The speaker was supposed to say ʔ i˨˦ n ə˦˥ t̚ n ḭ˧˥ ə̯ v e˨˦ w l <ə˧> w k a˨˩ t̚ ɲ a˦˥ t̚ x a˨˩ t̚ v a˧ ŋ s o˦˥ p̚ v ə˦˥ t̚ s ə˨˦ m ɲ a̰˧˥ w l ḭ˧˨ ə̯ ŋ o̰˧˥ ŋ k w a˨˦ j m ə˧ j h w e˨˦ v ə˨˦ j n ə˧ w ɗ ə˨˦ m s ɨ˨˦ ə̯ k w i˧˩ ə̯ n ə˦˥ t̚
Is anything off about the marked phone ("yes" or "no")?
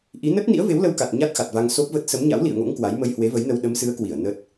no